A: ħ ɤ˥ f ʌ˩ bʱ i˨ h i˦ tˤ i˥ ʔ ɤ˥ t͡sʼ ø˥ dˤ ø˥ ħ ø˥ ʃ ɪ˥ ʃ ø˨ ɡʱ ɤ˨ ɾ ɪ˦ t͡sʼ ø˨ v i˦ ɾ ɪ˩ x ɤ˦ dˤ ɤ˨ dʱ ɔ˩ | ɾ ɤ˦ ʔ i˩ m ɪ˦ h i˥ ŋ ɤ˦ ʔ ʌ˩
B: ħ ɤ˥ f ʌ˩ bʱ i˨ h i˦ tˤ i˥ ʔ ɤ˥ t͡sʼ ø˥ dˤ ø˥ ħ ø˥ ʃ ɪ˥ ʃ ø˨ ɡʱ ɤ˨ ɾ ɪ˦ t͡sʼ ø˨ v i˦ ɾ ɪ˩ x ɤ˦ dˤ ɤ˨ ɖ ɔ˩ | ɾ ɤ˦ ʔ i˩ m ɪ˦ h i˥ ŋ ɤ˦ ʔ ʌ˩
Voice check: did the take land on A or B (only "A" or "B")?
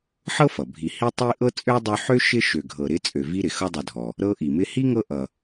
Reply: A